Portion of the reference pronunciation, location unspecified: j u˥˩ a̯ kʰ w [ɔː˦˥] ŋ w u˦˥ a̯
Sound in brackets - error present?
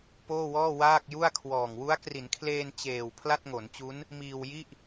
yes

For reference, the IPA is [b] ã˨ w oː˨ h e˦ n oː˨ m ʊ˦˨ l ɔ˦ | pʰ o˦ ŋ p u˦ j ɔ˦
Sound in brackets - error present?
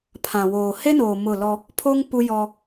yes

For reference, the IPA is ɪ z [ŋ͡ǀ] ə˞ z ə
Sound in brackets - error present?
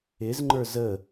yes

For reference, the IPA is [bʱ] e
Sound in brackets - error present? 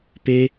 yes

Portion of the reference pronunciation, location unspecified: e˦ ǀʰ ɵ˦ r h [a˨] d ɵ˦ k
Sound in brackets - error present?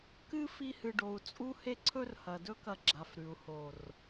yes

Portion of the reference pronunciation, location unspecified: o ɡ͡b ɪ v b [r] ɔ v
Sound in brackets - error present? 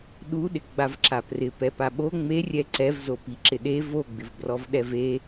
no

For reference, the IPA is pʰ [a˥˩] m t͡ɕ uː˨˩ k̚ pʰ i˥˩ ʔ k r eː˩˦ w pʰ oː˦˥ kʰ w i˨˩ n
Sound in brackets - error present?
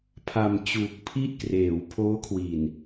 yes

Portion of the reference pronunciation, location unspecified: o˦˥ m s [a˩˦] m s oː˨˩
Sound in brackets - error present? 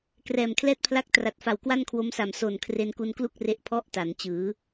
yes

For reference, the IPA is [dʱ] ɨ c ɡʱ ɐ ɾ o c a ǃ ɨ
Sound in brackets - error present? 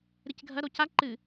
yes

